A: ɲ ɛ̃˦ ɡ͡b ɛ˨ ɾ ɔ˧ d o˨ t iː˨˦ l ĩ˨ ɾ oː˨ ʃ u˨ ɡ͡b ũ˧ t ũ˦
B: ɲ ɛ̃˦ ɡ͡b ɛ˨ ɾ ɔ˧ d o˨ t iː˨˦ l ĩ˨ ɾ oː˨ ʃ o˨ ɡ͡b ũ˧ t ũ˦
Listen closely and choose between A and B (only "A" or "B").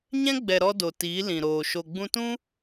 B